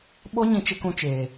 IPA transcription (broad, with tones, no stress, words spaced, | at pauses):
ɓo˦ ɲĩ˦t͡ʃɪ˦kũ˦t͡ʃeː˨